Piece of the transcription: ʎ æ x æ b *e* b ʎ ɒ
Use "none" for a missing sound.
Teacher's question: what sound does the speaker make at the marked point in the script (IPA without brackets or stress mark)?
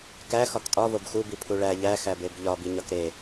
e